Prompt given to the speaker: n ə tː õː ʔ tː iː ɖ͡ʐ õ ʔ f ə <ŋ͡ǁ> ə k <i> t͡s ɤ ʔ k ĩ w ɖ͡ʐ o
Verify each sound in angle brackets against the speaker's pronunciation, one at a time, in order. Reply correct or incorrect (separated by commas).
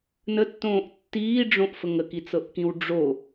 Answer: incorrect, correct